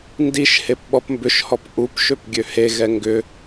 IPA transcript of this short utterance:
n d i ʃ h e p ɓ ɔ p m b ʏ ʃ h ɔ p ʔ u p ʃ ø p ɡʲ ø h e ɣ ɛ ŋ ɡ ʏ

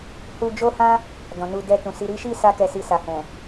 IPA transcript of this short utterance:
h u˧ d͡ʒ o˦ h ã˦ | d ɔ̃˨ n u˧ d ɛ˧ t ũ˨ s i˨ ɾ i˨˦ ʃ i˦˨ s a˧ k ɛ˧ s i˧ s a˨ h ɛ̃˨

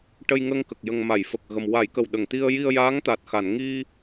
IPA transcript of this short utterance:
ʈ ə˧ j ŋ ə˧ ŋ k ə˨˩ k̚ j ə˨˩ ŋ m a˨˩˨ j f ə˨˩ k̚ ɣ ə˨˩ m w a˨˩˦ j k ə˨˩ w ɗ ə˨˩˨ ŋ t̪ i˧ ə̯ j i˧ ə̯ j aː˧˥ ŋ t̪ a˨˩ t̚ x a˨˩˨ n ŋ i˧

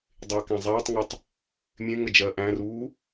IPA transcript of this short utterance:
dˤ eː k æ̃ zˤ æː tˤ ŋ ɜ tˤ | mʲ ẽ ŋ ə d͡ʒ ɜː ʔ æ̃ r uː

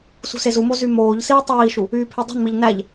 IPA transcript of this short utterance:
s ṳ s e z u m o z y m oː ʎ s iː tˤ iː ʃ u | yː pʰ e dˤ ṳ n m i ʎ n æ ʎ

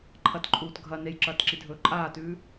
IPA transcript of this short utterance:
ǃʰ ɐ t ǃʼ uː t ɡʱ ɐ n e j ǁ ɐː t ǁ i dʱ ɵː ǃʼ aː t ʉː

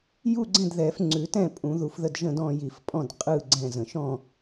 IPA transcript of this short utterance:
j u˥˨ ɡ͡ǀ ɛ̃˥˨ d ð ɛ˨˩˦ f ŋ͡ǀ ʉ˨˩˦ t ɛ̃˥˨ pʼ ũ˨˩˦ ð u˨˩˦ f ð ə˥˨ d ʒ ə̃˥˨ d ɔ̃˥˨ j i˨˩˦ f pʼ ɔ̃˥˨ d qʼ ɯ˥˨ ɡ͡ǀ ɛ̃˥˨ z ə̃˨˩˦ ʃ ɔ̃˥˨

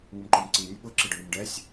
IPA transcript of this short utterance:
ŋ ʊ m ǃ o m ǀ i nʲ ʊ ɓ ʊ ǁ ɪ ɖ ʊ ɳ ʊ m ɖ ɛ sʲ

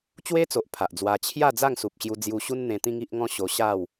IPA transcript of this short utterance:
t͡ɕ w e˦ t͡s o˨ ʔ pʰ a˨ ʔ d͡z w a˧ t͡ɕʰ j a˥˧ d͡z a˥˧ ŋ s u˨ p̚ ɕ j u˧ d͡z j u˧ ɕ u˦ n n̪ ẽ˧ t̪ ĩ˦ ŋ i˦ ʔ ŋ ɔ̃˦ ɕ o˧ ɕ a˥˧ w

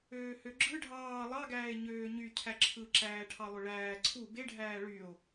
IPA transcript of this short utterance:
øː h ø ɡ͡ǁ ɯ ɖʱ ɑː lˠ ɑ ɡ æː e̯ ɲ øː ɲ y cʰ æ ǁʰ ɯ ǁ æː ʈʰ ɑ lˠ ø ɭ æː ǀʰ u b e ɖʱ æː ɭ y o̯

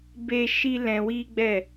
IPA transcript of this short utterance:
b e˦ ʃ i˦ l ɛ̃˧ w i˦ ɡ͡b ɛ˦˨

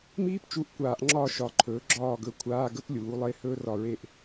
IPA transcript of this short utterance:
m iː˥ p t͡ʃ u˧˥˧ ʔ kʷ aː˨˩˦ ʔ ŋ͡ǁ ɒ˦˨ ʃ ɒ˩˥ ǃʰ ɵː˩˥ ɡ͡ǁ ɒː˦˨ ɡ ɵ˦˨ kʷʰ aː˧˥˧ ɡ ə˥ p lʲ uː˩˥ lˠ e˧˥˧ h ɵː˥ r ɒ˦˨ ɹ e˦˨ ʔ

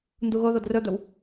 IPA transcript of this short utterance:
n d u ɣ o ð o d r ɵ d̪ ɵ w

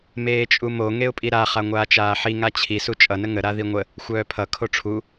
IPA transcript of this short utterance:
m eː t͡ʃʼ u m o ŋ e ʊ̯ pʼ i ɾ a χ a ŋʷ aː t͡ʃ aː ħ i ŋ a t͡ɕʰ i s u t͡ʃʼ ʌ n ə ŋ ə ɾ a ð i ŋʷ ə | xʷ œː pʰ ʌ kʰ o ʈ͡ʂʰ u

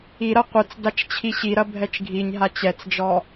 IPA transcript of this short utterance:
i ɾ ɐ qʷ ɨ t͡s d a t͡ʃ t͡ɕʰ i ɕ i ɾ ɐ bʱ ɛ t͡ʃ ɡʱ i ɲ ɦ a t͡ɕ ɛ t͡s d͡ʒ ɔ

